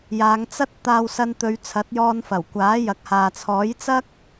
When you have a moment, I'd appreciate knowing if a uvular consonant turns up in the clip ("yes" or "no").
no